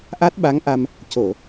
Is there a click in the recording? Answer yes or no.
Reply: no